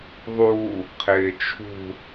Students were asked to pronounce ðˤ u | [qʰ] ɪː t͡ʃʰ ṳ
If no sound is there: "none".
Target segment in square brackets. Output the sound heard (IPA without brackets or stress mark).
qʰ